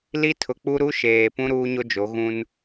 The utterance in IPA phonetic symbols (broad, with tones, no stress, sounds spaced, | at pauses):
l i˦ tʰ ʊ˨ k͡p u˦ ɾ u˦ ʃ eː˨ p ũ˦ ɾ uː˦ ɲ o˦ d͡ʒ o˨˦ ɣ ũ˦ n